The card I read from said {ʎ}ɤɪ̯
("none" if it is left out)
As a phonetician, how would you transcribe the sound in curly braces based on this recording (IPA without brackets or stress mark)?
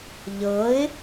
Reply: ʎ